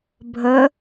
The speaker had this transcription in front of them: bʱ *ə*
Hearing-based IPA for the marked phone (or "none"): ə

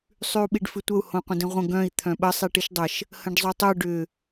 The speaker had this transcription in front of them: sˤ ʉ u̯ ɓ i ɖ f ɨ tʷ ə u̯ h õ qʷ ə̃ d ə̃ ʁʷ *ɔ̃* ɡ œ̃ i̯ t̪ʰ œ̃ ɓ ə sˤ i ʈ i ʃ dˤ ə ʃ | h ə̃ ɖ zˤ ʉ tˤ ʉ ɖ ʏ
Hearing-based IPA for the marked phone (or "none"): ə̃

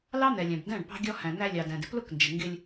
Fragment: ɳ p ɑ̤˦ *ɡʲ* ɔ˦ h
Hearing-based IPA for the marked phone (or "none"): ɡʲ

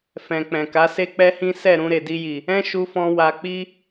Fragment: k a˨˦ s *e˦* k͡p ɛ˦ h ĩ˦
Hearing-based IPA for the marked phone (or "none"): e˦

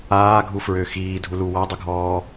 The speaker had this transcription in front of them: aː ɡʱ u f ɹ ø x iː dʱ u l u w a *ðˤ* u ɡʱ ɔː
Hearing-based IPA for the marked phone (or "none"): dˤ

